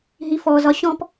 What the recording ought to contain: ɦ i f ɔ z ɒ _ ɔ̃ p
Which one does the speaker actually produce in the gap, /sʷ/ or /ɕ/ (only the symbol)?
ɕ